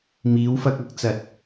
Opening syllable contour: rising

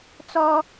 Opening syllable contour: high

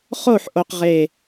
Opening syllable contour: falling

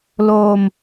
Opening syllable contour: low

